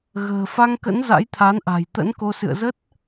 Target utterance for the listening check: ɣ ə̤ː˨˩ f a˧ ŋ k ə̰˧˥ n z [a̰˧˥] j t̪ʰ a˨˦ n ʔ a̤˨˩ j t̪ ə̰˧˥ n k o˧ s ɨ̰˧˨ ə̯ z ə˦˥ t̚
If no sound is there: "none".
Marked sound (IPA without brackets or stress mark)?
a̰˧˥